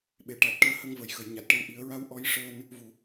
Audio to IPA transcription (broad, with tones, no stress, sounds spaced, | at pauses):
ɓ e˨˩˦ ʈ a˨˩ t̚ ʈ əː˧ h ə˧ ŋ v ə˨˩˨ j x ə˨˩˨ j ɲ a˨˩ t̚ ʈ ə˧˥ w ʔ i˨˩˦ ə̯ ɹ a˧˥ w ʔ ɔ˧˥ j ʂ əː˧ n | v u˨˩˨